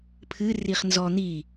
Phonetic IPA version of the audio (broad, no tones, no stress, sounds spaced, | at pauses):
pʰ ɨ r i χ n z ɔ n̪ i